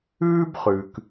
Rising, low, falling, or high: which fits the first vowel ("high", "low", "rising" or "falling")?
high